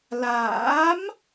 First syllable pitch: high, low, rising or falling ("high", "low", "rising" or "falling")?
rising